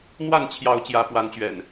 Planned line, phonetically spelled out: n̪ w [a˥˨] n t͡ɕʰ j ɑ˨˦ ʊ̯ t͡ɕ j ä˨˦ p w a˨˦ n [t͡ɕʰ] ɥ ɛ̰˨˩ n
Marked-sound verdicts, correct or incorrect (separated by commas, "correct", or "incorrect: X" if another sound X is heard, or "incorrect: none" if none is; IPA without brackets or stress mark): correct, incorrect: t͡ɕ